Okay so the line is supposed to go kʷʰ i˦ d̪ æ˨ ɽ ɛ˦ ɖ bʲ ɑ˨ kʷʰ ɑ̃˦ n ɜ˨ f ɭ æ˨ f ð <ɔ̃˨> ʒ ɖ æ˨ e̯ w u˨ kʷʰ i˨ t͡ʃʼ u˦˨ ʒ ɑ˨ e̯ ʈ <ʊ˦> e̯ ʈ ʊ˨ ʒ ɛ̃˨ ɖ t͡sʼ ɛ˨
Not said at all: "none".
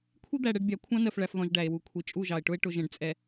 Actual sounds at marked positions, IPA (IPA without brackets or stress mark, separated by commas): ɔ̃˨, ʊ˦